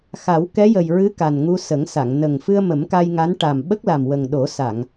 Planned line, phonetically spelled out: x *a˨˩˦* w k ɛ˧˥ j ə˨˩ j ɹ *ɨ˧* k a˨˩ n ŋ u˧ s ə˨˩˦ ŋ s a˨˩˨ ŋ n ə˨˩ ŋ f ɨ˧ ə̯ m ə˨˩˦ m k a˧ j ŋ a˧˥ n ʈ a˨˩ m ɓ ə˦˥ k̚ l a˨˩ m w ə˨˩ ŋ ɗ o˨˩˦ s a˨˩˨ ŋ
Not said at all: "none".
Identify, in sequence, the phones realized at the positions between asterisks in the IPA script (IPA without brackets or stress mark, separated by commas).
a˨˩˦, ɨ˧˥